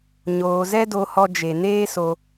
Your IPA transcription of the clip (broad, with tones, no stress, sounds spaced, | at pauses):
ɲ oː˧ z ɛ˦ d o˧ h ɔ˧ d͡ʒ e˨ n eː˦ s o˧